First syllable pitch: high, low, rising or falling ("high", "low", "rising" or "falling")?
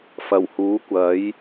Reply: low